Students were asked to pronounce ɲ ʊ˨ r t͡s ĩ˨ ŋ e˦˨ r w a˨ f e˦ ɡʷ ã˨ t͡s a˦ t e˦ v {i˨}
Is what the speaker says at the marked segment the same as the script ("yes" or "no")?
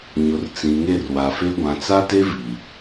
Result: yes